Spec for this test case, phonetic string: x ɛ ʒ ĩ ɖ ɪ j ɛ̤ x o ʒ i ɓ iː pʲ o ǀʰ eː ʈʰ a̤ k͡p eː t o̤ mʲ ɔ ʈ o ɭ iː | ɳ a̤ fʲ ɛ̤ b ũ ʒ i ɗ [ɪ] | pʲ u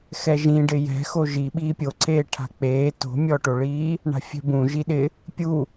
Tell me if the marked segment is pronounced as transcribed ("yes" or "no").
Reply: yes